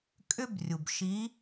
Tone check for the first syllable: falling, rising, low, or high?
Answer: high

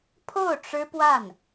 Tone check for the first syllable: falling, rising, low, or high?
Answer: falling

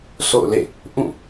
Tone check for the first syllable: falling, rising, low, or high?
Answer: falling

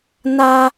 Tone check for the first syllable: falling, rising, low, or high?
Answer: high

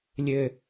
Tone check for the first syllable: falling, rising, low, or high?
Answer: high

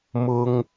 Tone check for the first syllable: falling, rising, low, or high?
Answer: high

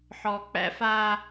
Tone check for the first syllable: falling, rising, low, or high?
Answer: low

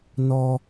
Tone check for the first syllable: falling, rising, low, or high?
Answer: high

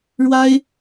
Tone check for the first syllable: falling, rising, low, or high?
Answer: high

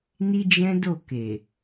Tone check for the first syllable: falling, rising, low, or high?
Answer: high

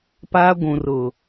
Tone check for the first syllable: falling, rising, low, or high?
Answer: high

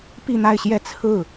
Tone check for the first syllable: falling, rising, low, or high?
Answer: falling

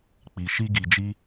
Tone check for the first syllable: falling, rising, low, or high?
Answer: low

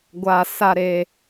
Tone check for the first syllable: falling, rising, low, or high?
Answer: low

